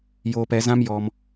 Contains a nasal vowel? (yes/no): yes